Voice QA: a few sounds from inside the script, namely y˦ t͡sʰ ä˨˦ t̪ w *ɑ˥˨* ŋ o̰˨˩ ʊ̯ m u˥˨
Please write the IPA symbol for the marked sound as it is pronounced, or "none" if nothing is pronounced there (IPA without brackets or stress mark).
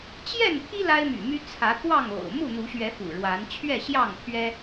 ɑ˥˨